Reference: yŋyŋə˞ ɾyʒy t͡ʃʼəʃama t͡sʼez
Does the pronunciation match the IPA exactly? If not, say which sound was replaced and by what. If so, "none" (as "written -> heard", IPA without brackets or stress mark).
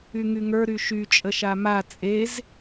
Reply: ʒ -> ʃ